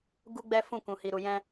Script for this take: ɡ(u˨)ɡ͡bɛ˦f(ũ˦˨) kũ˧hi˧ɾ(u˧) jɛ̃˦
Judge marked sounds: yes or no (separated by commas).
no, yes, yes